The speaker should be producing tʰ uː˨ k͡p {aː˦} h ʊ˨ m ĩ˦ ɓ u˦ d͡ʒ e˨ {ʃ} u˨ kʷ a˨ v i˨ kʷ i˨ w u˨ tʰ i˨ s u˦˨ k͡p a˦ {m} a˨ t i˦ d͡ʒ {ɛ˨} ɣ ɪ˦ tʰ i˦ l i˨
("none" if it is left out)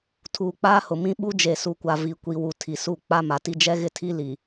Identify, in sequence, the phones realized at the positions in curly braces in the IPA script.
aː˦, s, m, ɛ˦

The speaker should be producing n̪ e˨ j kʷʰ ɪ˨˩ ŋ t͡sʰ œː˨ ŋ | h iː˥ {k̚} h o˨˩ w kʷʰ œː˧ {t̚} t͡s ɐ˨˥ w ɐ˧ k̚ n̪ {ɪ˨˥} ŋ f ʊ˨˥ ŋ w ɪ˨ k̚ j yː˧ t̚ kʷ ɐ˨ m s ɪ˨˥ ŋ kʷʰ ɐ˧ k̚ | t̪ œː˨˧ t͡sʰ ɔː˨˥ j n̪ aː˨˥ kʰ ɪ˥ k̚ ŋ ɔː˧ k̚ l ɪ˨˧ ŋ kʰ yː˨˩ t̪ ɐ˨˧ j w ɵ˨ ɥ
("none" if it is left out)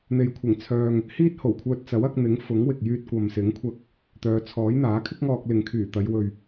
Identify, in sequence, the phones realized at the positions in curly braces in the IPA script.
t̚, t̚, ɪ˨˥

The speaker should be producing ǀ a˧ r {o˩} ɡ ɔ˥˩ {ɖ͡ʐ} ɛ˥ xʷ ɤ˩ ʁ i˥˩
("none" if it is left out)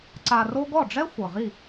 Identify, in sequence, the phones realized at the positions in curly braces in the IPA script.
o˥, ɖ͡ʐ

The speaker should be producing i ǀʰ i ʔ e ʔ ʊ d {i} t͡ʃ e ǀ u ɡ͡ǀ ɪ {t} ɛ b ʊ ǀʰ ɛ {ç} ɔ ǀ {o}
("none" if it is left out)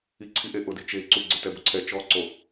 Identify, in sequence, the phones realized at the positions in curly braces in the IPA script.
i, t, t͡ʃ, o

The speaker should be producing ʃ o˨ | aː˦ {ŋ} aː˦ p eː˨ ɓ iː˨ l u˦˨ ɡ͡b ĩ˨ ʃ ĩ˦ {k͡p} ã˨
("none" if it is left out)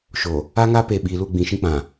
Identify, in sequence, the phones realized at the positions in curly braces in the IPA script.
ŋ, k͡p

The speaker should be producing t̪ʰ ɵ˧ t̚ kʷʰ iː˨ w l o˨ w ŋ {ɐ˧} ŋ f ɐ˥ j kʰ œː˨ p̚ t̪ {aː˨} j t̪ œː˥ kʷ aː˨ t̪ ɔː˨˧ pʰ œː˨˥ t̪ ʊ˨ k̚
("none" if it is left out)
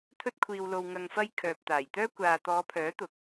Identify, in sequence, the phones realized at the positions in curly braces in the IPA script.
ɐ˧, aː˨˩

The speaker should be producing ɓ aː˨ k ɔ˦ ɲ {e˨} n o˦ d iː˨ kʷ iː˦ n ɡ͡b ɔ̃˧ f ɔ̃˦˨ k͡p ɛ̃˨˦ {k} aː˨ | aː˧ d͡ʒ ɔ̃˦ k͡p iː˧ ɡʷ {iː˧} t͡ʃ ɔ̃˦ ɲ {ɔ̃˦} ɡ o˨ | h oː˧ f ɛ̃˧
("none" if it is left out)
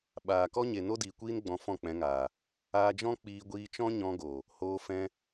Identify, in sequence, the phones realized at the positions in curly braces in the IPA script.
e˨, ŋ, iː˧, ɔ̃˧

